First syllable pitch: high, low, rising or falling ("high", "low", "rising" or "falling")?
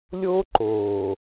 high